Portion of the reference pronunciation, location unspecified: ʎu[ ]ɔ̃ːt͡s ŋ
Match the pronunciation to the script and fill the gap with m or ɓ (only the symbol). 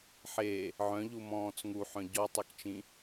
m